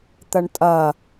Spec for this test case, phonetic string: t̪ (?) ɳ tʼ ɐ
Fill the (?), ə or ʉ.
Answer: ə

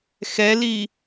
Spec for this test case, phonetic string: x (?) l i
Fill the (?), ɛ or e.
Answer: ɛ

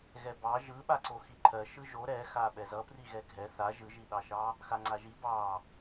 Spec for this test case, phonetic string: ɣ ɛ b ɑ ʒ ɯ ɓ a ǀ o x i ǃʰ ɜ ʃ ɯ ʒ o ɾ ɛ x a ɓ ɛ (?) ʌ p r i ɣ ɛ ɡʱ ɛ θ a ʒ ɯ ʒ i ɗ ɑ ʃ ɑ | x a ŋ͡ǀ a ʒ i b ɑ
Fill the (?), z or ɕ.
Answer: z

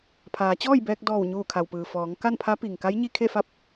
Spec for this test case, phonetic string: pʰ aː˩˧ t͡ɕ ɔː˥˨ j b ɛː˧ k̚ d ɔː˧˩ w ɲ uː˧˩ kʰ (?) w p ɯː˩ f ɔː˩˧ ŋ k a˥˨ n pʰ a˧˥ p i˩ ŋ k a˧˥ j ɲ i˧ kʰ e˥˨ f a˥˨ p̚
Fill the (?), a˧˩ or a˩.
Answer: a˩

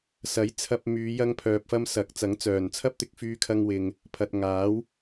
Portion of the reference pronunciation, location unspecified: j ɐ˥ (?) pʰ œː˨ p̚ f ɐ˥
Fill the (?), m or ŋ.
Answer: ŋ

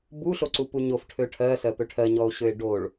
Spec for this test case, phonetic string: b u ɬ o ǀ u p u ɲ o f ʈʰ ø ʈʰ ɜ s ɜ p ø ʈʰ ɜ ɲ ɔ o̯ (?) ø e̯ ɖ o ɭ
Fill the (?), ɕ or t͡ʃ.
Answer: ɕ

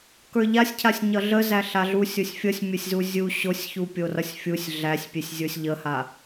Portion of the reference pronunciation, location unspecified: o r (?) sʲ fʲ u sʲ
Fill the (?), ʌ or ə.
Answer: ʌ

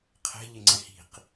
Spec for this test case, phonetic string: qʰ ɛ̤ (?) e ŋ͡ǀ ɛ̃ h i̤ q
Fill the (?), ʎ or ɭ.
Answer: ʎ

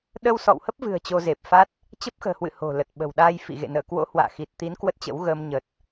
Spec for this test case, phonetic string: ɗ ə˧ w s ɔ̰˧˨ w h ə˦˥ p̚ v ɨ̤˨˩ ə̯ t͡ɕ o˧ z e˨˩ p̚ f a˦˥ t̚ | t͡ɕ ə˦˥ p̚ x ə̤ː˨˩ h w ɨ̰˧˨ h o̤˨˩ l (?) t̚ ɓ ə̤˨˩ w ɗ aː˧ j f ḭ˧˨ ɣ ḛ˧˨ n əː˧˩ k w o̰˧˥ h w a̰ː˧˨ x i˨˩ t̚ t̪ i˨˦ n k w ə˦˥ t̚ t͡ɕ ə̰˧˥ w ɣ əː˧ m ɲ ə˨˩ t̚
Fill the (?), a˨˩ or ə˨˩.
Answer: ə˨˩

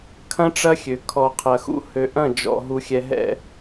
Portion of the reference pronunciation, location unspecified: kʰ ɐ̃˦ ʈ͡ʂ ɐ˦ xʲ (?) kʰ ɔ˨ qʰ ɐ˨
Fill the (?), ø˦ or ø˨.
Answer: ø˨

